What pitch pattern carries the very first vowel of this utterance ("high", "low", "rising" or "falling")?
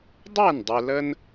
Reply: falling